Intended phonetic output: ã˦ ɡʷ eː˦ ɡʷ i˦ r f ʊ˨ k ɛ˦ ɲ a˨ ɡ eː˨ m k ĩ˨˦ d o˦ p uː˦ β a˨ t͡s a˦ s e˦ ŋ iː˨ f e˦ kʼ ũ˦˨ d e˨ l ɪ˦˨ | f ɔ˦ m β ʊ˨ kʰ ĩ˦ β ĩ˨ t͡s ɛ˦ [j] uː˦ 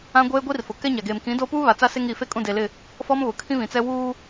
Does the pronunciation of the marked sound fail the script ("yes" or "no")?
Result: yes